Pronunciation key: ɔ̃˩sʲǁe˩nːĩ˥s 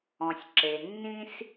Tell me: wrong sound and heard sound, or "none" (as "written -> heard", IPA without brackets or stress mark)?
none